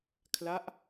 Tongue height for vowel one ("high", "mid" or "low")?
low